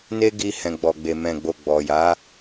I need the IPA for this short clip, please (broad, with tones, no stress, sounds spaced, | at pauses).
n e˦ ɡ i˧ h ɛ̃˨ ɡ͡b ɔ˨ ɡ͡b e˨ m ɛ̃˨ ɡ͡b o˨ ɡ͡b ɔ˨ j a˨˦